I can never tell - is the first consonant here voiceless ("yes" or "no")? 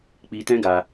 yes